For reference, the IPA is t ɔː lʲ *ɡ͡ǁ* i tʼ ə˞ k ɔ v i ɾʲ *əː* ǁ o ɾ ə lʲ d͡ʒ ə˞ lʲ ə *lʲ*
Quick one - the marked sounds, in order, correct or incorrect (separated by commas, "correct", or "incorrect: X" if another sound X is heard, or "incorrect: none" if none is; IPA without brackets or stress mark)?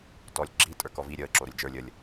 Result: correct, correct, correct